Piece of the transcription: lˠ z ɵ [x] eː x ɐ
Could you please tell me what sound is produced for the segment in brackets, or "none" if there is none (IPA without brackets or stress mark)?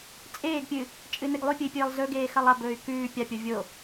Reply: ɡ